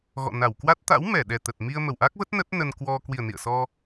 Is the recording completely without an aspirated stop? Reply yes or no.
yes